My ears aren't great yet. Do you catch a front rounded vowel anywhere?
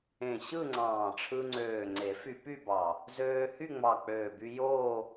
yes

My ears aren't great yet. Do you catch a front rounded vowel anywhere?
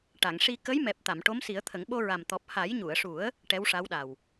no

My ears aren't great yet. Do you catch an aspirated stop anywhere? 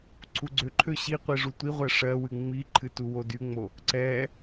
yes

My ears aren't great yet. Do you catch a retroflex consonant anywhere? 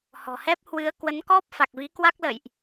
no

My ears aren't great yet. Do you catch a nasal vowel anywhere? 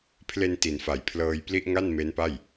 no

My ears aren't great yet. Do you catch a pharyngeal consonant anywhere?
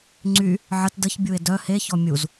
yes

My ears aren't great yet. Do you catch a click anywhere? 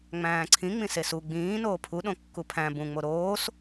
yes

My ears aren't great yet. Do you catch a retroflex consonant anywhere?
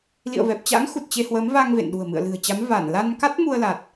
no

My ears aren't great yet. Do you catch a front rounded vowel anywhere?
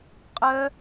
yes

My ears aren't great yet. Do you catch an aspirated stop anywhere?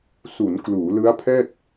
yes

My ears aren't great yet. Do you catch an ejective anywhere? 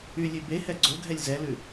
no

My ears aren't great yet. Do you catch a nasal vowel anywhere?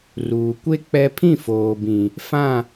yes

